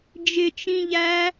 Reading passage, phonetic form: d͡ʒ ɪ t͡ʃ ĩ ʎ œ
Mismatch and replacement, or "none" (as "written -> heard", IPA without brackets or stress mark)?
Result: œ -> æ